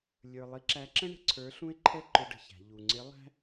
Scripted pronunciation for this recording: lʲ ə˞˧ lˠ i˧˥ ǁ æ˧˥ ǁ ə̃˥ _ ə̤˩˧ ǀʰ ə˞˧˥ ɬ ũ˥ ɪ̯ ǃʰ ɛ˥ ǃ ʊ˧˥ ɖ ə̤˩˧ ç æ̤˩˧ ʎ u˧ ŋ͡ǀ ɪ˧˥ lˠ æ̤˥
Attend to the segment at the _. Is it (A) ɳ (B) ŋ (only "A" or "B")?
A